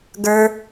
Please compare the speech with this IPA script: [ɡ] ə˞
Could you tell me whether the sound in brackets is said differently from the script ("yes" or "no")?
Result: no